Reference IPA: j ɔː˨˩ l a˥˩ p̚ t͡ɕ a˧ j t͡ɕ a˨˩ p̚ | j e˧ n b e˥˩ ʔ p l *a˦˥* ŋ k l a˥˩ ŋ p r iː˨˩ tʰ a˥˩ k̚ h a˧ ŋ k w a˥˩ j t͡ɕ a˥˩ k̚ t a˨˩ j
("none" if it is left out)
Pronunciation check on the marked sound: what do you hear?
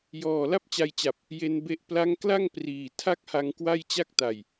a˦˥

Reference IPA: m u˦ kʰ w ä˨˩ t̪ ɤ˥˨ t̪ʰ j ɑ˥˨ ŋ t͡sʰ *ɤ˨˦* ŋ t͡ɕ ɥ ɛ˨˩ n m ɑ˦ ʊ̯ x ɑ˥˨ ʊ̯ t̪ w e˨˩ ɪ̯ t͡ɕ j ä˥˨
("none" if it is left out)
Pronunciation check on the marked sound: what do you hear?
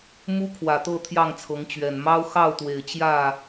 ɤ˨˦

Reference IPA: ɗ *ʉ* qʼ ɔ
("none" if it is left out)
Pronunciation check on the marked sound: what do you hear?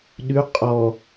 ʉ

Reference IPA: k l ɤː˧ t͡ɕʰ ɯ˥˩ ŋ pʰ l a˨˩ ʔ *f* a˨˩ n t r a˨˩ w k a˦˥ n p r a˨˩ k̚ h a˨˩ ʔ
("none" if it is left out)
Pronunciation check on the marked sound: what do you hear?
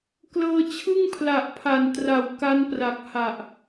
pʰ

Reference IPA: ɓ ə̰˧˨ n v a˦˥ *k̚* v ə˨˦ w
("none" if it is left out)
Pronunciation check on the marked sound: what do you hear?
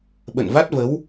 t̚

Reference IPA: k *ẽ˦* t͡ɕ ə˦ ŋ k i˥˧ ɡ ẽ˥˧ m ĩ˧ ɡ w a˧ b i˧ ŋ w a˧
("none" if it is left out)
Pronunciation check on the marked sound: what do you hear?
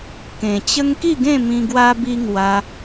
ẽ˨˩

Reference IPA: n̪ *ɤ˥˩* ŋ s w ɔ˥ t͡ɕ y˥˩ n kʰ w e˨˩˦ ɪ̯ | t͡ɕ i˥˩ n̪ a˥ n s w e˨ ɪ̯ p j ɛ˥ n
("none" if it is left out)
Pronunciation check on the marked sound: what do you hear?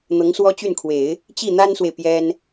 ɤ˧˥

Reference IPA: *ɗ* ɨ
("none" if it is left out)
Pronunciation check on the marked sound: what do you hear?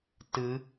t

